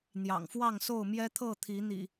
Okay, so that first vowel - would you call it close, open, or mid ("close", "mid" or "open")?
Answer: open